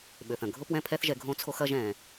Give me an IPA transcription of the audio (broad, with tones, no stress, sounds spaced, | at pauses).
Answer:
ɓ ø˨ θ ɐ̃˨ ɡʱ ʊ˦ p w ɛ̃˦ pʰ ɛ˦ θ ʒ ɛ˧ ɡʱ õ˦ t͡sʰ o˦ x ɐ˦ ʒ ɛ̃˧